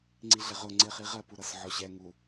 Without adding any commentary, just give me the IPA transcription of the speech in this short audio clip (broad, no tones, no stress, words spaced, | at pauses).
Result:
ŋ͡ǀiɮɪʁʊ ŋ͡ǀɪχiʁɜpu ɾʌsʕɔɕɛ ŋu